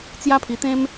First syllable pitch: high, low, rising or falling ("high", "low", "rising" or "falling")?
high